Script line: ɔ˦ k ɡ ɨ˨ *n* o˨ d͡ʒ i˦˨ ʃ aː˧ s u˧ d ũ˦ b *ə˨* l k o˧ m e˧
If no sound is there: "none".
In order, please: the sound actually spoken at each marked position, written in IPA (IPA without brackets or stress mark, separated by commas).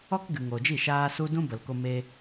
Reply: ŋ, ə˨